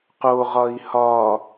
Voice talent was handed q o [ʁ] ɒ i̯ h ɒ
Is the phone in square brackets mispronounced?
no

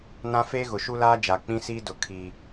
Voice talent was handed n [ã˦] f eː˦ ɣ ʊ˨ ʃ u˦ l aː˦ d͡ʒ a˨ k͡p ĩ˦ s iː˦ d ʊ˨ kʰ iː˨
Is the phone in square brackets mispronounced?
no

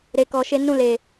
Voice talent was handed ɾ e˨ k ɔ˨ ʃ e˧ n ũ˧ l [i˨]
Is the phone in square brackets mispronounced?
yes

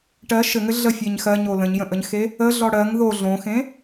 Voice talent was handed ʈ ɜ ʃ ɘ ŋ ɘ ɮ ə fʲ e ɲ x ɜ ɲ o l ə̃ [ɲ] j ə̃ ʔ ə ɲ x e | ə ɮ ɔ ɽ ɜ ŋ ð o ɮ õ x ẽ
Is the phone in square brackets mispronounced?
no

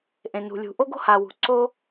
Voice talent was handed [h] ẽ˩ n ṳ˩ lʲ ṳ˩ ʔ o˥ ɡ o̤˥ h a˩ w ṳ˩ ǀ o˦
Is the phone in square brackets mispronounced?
yes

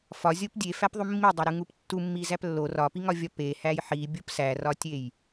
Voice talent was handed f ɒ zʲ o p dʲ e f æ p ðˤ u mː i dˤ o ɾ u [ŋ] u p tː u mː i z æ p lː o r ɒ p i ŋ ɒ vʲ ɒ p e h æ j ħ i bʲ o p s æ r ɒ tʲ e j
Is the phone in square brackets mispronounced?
no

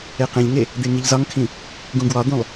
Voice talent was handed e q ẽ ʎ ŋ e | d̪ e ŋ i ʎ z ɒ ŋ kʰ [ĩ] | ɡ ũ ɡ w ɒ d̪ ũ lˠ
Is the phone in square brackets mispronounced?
no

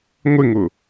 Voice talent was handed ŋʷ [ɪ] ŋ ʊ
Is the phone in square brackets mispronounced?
no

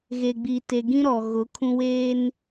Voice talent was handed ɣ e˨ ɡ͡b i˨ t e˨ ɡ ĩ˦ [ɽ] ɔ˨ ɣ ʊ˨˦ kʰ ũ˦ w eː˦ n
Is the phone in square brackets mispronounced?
yes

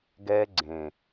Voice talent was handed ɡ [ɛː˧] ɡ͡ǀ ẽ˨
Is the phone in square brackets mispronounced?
no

